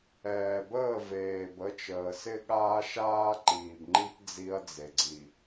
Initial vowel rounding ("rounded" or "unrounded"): unrounded